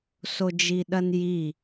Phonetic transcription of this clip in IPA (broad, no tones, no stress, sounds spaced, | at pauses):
s o d͡ʒ i ɗ ɐ n j i